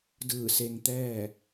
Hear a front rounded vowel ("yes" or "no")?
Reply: no